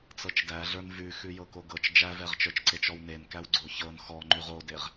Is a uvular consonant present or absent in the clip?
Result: present